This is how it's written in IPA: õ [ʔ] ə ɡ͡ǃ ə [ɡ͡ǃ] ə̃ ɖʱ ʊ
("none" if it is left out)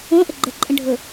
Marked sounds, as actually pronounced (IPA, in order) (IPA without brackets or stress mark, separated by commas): ʔ, ǃʼ